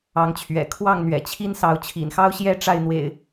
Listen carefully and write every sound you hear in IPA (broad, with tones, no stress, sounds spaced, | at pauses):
ɑ˨˦ ŋ t͡ɕʰ ɥ ɛ̰˨˩ kʰ w ɑ˥˨ ŋ n̪ ɥ ɛ̰˨˩ t͡ɕʰ i˦ n s ɑ˨˦ ʊ̯ t͡ɕʰ ḭ˨˩ n x ɑ˦ ʊ̯ ɕ j ɛ˥˨ ʈ͡ʂ a˥˨ ɪ̯ n̪ w ḛ˨˩ ɪ̯